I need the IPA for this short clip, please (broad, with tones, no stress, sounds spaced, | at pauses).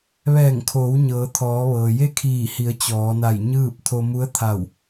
ʋ ɛː˧˩ ŋ kʰ oː˩˧ w ɲ ɤː˩˧ t̪ʰ ɔː˩˧ ʋ ɤː˩ j e˥˨ kʰ iː˧˩ h i˩˧ ə̯ t͡ɕ ɔː˩˧ n a˧˩ j ɲ ɯː˥˨ p̚ t̪ʰ o˧ m u˧˥ ə̯ t̪ʰ a˧˩ w